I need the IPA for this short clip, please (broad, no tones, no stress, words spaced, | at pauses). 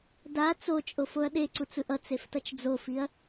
da t͡sot͡ʃʼofoɐ̯ ɗeǀut͡sɯʔ ʌt͡seftʌt͡ʃ d͡zofiɐ̯